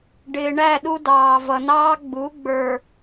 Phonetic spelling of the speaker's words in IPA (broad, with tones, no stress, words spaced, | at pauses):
ɖɪː˨ɳæ˦˨ɗu˦ dɑː˨vʌ˨nɑː˦ ɡ͡bu˨˦ɡ͡bə˞˨